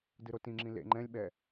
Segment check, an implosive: present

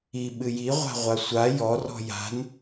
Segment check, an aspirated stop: absent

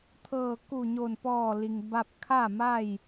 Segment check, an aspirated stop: present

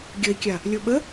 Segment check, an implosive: present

